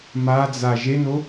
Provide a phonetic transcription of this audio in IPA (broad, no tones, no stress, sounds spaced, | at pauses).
m a d͡z a ʒ e n o